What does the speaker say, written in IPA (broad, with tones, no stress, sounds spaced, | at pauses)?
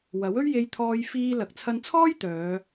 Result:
w ɐ˨˥ w ɵ˥ ɥ j e˧ j t̪ʰ ɔː˧ j f iː˧ l ɐ˨ k̚ t͡sʰ ɐ˧ n t͡sʰ ɔː˥ j t̪ œː˨˧